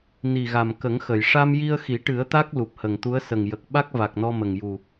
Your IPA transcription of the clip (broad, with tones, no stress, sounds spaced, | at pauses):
n i˨˩ ɣ a˨˩ m k ə˨˩˦ ŋ x ə˨˩˨ j ʂ a˧ m j i˧ ə̯ x i˨˩˦ ʈ ɨ˨˩˦ ə̯ t̪ a˦˥ k̚ l u˨˩ p̚ h ə˨˩ ŋ t̪ u˧˥ ə̯ s ə˨˩ ŋ j ə˨˩ k̚ ɓ a˦˥ k̚ v a˨˩ k̚ n ɔ˧ m ə˨˩ ŋ j u˨˩